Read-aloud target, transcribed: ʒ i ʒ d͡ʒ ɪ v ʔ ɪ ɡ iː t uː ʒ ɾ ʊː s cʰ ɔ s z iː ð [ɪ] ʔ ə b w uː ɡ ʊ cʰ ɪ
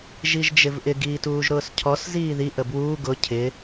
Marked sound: incorrect: i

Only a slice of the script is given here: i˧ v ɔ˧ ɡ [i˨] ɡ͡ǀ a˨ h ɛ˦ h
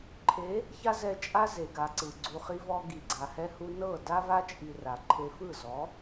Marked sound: correct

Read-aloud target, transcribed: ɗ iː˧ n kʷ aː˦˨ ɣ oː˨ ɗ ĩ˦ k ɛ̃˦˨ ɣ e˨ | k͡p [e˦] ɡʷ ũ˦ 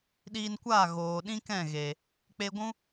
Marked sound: correct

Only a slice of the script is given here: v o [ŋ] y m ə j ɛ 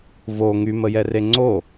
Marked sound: correct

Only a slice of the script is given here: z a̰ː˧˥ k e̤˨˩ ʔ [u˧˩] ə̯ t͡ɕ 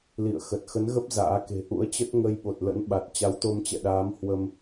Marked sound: incorrect: ṵ˧˥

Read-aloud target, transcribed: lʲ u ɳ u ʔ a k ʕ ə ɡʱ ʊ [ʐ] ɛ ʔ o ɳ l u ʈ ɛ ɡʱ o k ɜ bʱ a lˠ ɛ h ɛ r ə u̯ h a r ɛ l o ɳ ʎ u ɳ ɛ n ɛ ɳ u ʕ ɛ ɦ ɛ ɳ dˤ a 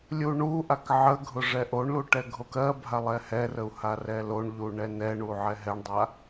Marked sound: correct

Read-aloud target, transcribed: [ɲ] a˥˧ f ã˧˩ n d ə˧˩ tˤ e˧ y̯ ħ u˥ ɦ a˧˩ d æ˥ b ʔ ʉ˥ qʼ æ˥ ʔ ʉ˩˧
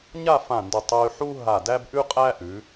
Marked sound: correct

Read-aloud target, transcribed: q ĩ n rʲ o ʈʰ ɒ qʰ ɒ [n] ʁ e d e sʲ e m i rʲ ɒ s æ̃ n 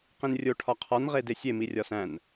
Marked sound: correct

